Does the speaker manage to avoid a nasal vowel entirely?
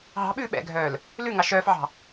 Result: yes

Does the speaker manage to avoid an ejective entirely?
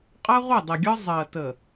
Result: no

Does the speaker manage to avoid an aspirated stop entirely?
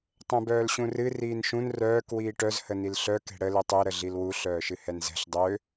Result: yes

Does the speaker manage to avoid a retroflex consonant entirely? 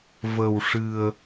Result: no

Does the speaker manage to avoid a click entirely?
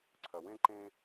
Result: no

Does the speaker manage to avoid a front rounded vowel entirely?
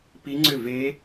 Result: no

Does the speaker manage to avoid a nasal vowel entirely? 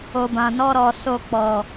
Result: no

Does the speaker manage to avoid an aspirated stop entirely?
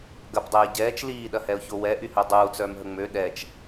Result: yes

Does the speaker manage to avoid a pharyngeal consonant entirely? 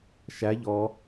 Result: yes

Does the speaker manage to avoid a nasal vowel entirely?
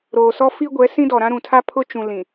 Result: no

